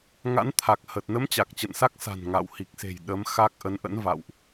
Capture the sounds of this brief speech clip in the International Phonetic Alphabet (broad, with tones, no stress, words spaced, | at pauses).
ŋa̰˧˥nt̪ʰa˨˩k̚hə˨˩t̚ nə˨˦m t͡ɕa˨˩k̚t͡ɕə̰˧˨nsa˦˥k̚sa̤˨˩n ŋa̰˧˨w hi˨˩k̚se̤˨˩j ɗə˨˦mxa˦˥k̚ ʔə˨˦n ʔə̰˧˥n va̰˧˨wʔ